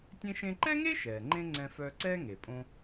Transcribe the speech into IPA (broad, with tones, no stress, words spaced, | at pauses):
tʲẽ˧ʃẽ˧ǃɛ˥ŋe˥ ʃɛː˩ŋ͡ǃẽ˥ ŋ͡ǀɛ̃˧fœː˧ǀɛː˥ ŋe˩ pʼõ˧